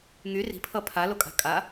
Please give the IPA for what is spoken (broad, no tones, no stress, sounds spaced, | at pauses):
ŋ y r i̤ pʰ ʌ pʰ a l o kʼ a̤ kʼ a